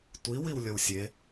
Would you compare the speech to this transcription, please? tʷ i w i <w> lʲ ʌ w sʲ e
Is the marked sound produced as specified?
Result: yes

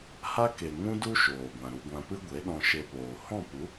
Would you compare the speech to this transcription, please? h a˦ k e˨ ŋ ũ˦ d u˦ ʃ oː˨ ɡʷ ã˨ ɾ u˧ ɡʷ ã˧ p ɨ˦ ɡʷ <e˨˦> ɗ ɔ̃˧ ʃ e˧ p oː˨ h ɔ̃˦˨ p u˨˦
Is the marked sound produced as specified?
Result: yes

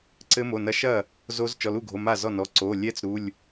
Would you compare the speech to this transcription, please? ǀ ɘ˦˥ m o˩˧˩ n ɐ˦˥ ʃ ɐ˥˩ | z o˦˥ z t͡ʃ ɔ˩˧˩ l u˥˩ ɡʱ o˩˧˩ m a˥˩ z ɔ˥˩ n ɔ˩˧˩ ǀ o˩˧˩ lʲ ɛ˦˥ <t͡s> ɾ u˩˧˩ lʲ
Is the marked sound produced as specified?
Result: yes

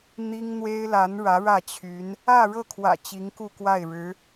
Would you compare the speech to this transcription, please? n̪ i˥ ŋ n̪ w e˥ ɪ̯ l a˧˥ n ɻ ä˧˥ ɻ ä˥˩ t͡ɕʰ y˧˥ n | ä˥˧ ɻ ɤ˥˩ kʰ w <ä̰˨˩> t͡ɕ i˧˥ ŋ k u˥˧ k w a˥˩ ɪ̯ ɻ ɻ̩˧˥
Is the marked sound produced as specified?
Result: yes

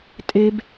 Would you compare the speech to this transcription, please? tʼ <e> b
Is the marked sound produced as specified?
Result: yes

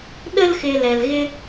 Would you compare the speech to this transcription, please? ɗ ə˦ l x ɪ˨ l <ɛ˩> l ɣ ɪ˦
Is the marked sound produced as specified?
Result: yes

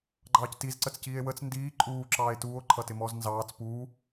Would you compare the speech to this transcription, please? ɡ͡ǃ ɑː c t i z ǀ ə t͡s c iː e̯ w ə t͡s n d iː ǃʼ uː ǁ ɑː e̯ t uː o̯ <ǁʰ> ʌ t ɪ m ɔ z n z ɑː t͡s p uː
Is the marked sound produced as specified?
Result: no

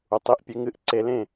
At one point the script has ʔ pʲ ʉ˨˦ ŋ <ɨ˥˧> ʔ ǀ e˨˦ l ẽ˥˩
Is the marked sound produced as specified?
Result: yes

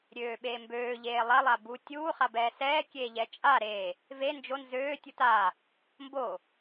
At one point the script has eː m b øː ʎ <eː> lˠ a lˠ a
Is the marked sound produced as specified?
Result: yes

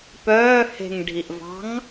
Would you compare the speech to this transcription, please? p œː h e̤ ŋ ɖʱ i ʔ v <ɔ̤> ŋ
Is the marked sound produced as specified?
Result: no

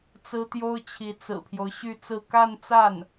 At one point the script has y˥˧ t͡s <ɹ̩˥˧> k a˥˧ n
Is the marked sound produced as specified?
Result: yes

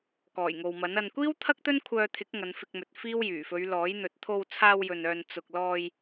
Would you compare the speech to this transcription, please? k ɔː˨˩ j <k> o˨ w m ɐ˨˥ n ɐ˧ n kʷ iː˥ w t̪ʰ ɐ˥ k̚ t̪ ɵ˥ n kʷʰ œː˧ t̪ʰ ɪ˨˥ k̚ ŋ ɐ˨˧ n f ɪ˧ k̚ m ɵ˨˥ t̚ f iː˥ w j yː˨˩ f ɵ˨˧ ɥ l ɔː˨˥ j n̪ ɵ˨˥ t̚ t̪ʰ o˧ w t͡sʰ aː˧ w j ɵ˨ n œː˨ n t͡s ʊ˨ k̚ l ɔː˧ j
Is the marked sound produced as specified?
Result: no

